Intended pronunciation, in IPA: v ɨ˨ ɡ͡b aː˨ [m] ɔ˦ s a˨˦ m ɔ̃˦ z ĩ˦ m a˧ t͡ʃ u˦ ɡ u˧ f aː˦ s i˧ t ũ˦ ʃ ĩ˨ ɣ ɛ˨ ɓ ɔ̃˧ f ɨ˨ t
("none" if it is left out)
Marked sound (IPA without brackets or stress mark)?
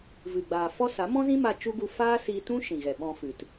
f